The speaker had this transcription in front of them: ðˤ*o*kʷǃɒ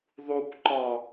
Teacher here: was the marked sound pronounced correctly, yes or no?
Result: no